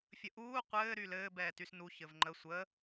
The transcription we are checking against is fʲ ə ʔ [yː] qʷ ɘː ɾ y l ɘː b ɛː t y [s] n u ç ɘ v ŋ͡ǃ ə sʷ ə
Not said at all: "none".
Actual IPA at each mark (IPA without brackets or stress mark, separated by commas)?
uː, s